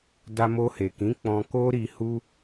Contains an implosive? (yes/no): no